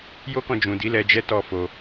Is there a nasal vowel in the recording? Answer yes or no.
yes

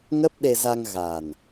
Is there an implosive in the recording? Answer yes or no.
yes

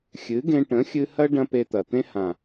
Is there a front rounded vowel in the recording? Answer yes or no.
no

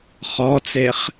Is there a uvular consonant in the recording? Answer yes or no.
yes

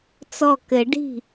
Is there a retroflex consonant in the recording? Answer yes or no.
yes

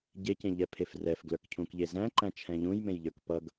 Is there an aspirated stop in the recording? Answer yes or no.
yes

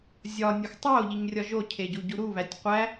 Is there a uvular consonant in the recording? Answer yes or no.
yes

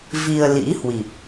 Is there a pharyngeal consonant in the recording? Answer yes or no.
no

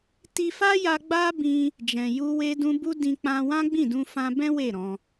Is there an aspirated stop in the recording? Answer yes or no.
no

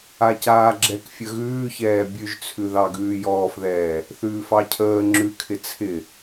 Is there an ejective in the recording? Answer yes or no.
no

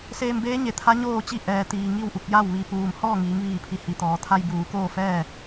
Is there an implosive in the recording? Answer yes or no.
no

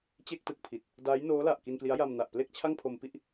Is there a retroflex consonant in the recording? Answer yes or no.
no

